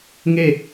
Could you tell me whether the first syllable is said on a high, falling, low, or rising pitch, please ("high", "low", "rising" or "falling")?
falling